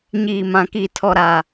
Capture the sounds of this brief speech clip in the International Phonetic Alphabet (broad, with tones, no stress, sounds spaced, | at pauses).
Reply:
ɲ iː˨ m ã˨ k i˨ tʰ ɔ˦ ɾ a˦